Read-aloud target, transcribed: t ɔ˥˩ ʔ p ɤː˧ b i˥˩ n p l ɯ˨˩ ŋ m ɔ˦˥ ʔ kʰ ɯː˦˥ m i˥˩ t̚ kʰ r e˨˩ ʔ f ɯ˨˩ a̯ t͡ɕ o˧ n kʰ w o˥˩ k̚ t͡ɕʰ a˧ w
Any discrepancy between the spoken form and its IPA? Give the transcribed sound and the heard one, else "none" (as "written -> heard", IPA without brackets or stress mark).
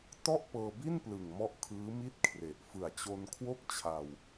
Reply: none